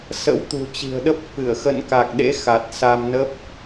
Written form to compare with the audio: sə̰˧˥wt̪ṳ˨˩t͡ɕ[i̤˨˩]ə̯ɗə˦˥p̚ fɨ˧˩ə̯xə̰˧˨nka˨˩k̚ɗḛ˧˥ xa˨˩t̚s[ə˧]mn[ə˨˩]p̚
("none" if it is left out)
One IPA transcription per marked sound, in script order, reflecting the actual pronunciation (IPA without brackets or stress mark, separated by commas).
i̤˨˩, a˧, ə˦˥